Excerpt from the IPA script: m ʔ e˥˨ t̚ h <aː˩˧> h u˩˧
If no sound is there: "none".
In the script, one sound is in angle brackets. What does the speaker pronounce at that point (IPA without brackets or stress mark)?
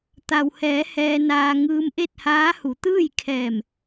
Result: aː˧˥